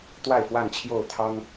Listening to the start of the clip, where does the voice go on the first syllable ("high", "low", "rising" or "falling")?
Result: falling